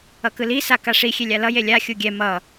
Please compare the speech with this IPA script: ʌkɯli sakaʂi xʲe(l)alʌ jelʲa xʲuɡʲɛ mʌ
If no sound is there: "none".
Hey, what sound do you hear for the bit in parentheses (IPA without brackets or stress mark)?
lʲ